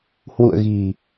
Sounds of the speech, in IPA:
hwṵ˧˨ə̯ɣi̤˨˩

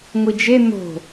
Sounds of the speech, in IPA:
ŋʷid͡ʒe n̪o̤

